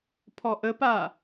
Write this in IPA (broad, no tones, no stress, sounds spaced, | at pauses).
pʰ ɔ ʔ ə p a